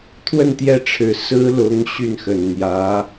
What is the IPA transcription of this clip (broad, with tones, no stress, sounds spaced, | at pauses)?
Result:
t̪ʰ w ə˥˧ n t̪ j ɛ˥˩ ʈ͡ʂʰ ɻ̩˨˩ s ɹ̩˥ l ʊ˧˥ ŋ ɕ y˥˩ n x ə˨˩ n n̪ j ä˧˥